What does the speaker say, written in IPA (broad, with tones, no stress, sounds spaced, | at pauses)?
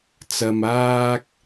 t͡s ɐ˨ m aː˧ k̚